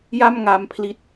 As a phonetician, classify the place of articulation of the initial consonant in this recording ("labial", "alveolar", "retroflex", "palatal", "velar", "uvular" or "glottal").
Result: palatal